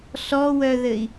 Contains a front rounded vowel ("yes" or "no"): yes